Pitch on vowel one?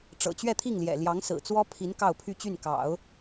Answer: low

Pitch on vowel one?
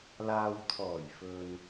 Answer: low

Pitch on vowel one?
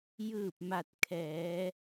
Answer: falling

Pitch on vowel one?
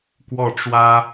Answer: falling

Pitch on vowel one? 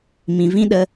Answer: low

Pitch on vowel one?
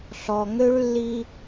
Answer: low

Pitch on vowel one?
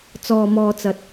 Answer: low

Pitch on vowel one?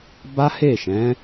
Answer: high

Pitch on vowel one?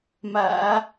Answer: low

